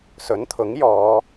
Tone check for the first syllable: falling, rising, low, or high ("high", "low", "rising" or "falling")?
rising